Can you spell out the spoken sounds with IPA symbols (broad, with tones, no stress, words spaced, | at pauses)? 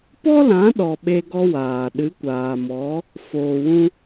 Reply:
pɔ˦lã˨˦ɗɔ˨ ɓe˧ɡɔ˧waː˨ ɗɨ˨˦kʷaː˨mɔ˨˦ | foː˨wũ˧